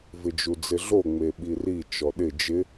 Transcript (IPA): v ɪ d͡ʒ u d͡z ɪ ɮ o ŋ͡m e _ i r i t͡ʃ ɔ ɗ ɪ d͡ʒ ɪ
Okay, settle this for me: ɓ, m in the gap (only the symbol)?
ɓ